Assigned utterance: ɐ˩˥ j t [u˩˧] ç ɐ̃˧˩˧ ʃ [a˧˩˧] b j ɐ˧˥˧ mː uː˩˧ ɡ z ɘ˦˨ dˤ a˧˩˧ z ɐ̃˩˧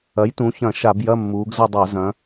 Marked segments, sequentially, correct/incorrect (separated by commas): incorrect, correct